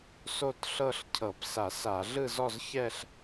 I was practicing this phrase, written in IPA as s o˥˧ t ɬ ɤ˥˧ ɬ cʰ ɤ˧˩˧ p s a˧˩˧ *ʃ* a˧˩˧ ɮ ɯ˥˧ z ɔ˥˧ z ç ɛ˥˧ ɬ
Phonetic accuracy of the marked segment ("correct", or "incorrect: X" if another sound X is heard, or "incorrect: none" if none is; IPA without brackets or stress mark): incorrect: s